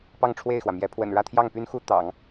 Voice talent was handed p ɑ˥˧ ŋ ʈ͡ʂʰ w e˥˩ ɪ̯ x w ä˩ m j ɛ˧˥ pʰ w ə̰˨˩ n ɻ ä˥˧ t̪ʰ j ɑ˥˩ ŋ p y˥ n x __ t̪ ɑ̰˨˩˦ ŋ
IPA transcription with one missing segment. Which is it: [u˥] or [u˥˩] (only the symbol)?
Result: u˥